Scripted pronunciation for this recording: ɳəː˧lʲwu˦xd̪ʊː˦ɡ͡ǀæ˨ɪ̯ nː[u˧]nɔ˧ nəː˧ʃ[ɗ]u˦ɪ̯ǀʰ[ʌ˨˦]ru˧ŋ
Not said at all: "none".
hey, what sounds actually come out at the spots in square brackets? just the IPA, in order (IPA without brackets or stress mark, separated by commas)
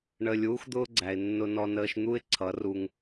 ʊ˧, n̪, ʌ˨˦